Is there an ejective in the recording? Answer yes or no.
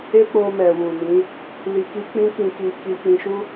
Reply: no